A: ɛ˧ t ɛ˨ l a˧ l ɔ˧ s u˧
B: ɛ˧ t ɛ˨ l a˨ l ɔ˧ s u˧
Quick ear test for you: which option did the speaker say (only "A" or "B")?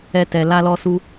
A